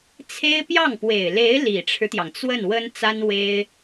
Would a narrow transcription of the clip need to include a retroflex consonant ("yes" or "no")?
yes